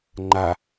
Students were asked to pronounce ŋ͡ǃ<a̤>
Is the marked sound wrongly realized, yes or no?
yes